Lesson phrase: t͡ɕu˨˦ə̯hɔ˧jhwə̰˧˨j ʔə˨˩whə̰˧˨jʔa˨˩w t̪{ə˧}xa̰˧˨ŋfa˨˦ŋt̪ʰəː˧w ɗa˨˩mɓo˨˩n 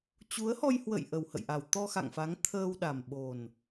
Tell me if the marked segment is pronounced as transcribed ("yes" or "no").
no